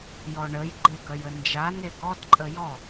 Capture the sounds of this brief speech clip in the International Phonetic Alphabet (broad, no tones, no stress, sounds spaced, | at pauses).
j ɔ ɳ ə j ɡ͡ǃ e ɡ œ j ə n d͡ʒ a n e ɡ ɔ d ǃʼ ə j ɔ